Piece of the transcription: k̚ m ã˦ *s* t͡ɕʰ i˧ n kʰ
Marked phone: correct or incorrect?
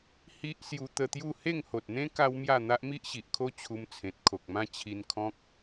incorrect